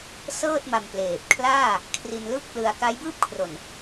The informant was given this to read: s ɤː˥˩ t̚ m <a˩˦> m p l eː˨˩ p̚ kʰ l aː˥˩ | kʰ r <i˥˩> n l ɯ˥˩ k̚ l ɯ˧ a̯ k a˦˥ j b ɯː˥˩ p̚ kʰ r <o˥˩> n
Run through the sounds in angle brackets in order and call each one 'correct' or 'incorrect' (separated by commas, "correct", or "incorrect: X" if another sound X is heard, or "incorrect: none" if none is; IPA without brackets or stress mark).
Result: incorrect: a˧, incorrect: i˧, incorrect: o˨˩